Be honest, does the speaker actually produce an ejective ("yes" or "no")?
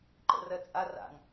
yes